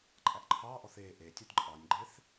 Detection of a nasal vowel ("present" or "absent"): absent